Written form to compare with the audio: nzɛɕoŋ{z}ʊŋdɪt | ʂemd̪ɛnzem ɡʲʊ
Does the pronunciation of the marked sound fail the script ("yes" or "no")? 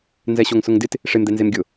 yes